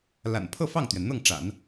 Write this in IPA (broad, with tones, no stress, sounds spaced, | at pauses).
l a̰˨˩ n pʰ ɤ˥˧ f ɑ˥˩ ŋ t̪ ɥ ɛ˩ n n̪ ɤ˥˩ ŋ ʈ͡ʂ a̰˨˩˦ n